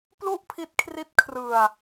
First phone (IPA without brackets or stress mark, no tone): p